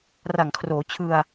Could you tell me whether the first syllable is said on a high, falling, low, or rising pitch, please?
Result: low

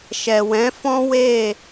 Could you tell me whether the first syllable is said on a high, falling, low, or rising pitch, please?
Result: low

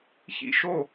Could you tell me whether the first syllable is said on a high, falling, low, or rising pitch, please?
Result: falling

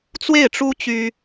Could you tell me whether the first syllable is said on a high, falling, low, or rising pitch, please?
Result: falling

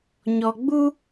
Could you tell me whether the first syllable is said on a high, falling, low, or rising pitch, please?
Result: low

